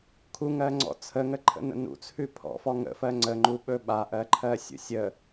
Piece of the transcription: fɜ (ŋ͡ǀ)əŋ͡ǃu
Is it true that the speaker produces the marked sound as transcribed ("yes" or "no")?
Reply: yes